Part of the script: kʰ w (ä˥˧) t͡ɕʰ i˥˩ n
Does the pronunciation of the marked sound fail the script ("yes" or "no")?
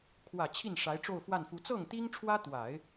yes